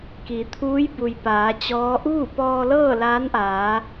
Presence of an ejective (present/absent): absent